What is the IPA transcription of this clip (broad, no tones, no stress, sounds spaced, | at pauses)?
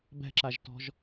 b ɛ̤ ǁ a ʒ t ɔ̤ ʒ